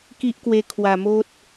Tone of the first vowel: high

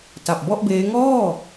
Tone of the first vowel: low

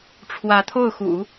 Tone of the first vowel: rising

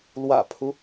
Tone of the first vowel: low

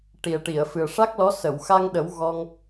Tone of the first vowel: low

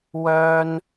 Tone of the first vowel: high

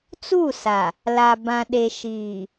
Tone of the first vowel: falling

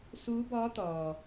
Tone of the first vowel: rising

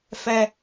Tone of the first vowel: high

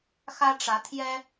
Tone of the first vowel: high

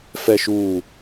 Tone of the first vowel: low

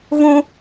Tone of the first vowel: high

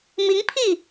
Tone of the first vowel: rising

